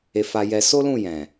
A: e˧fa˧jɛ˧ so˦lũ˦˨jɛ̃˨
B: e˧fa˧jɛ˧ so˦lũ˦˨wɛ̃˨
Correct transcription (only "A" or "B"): A